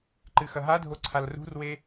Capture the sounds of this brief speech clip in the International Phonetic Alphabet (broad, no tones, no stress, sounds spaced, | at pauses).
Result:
ǃ ɨ x ɐ ɦ a dʱ o ǀʰ a l r ṳ r w e